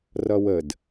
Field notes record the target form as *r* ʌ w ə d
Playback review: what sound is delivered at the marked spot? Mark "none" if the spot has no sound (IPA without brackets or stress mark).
r